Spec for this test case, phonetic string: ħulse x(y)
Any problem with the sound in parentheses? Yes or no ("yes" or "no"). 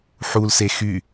no